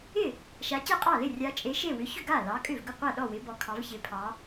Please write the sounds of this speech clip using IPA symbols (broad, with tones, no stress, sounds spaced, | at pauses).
ɪ˥˩ | ʃ a˨˦ c e˥˩ qʼ ɑ˥˩ l ɪ˥˩ rʲ a˨˦ t͡ʃʼ e˨˦ ʃ e˥˩ w ʏ˨˦ ç ʏ˥˩ ɡ a˥˩ l ɑ˨˦ kʼ ʏ˥˩ v ɡ ʏ˥˩ qʷ a˥˩ ɗ ɔ˥˩ w ɪ˨˦ b ɔ˨˦ kʰ ɑ˨˦ v ç ɪ˨˦ pʰ ɑ˨˦